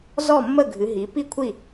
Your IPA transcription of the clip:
z ɔ˥˨ mː ə˥˨ ɡʱ ɨ˩˧ ɦ i˩˧ p i˥˨ kʷʰ i˥˨

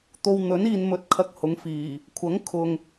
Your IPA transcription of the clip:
t̪ o˨ w n̪ ɵ˨˥ n iː˨ n m ɵ˧ t̚ kʰ ɐ˧ k̚ h ʊ˨˧ ŋ f iː˨˩ | kʷʰ ɐ˨˥ ŋ kʰ ʊ˨ ŋ

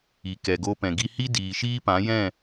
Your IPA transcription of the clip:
i˨ k ɛ˨ ɡ o˧ p ɛ̃˨ ɡ i˧ h i˦ d iː˨ ʃ iː˦ p ã˨˦ j ɛ̃˦˨

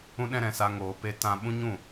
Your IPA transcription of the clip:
ũ˦ ɗ ɛ̃˦ ɾ ɛ̃˨ s a˧ ŋ oː˧ p e˦ t ã˦ ɓ ũ˦ ɲ ũ˦˨

